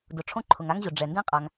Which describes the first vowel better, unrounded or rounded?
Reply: rounded